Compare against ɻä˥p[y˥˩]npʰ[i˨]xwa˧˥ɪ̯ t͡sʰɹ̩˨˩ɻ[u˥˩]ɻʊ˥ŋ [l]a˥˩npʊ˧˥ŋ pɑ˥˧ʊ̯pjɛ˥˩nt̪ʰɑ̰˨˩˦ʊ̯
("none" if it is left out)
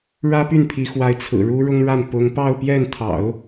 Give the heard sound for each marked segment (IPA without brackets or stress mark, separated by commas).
y˥˩, i˧˥, u˥, ɻ